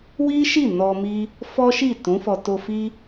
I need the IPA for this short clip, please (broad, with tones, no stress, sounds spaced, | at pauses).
w i˦ ʃ i˦˨ n ɔ˧ m i˦ | f ɔ˦ ʃ i˦˨ t ũ˨˦ f ɔ˧ t o˧ f i˦